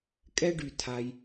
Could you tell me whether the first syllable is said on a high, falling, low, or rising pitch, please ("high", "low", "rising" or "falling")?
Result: high